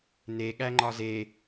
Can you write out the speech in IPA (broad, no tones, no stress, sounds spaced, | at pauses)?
n e ɠ æ ŋ͡ǃ ɒ z e